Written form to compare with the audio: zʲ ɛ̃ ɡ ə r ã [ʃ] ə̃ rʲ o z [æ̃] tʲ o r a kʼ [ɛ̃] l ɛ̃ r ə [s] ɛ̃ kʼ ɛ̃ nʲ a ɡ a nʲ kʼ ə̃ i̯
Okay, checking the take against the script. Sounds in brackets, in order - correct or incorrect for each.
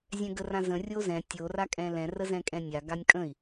incorrect: z, incorrect: ɛ̃, correct, incorrect: z

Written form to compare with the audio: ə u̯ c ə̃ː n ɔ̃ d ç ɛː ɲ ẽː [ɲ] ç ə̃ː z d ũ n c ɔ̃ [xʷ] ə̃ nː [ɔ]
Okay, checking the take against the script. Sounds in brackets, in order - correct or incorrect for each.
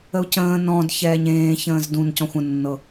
incorrect: none, correct, incorrect: ɤ

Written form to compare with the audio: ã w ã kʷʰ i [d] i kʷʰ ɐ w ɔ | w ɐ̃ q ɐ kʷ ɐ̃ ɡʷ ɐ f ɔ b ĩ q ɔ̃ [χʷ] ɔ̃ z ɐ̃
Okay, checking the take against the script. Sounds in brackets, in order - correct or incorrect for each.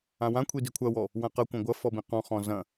correct, incorrect: χ

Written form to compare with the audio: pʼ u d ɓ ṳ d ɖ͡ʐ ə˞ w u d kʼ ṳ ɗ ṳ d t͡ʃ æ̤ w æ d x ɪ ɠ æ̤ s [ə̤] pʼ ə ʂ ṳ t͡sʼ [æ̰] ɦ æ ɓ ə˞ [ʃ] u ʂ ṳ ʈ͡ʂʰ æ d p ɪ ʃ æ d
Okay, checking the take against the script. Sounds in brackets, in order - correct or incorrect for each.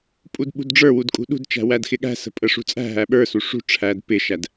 correct, incorrect: æ̤, incorrect: s

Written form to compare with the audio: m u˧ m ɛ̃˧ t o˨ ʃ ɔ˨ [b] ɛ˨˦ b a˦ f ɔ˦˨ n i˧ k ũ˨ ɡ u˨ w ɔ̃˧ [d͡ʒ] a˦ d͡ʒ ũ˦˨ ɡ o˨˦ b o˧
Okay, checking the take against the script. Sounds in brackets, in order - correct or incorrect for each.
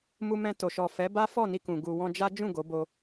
incorrect: f, correct

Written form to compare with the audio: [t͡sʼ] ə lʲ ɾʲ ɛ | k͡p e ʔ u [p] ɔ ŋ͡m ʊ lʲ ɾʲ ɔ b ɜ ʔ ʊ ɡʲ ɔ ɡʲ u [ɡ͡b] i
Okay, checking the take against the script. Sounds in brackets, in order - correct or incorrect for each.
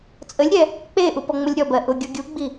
correct, correct, correct

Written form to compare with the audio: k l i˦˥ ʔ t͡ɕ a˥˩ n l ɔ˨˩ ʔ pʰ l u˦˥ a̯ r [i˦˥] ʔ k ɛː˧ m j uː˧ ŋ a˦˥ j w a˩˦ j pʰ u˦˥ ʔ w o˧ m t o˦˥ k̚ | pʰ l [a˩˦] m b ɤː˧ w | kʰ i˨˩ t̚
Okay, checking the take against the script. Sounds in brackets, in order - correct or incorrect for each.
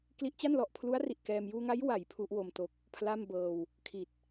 incorrect: i˨˩, incorrect: a˥˩

